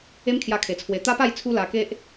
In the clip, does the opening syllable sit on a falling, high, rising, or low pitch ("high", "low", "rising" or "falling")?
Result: high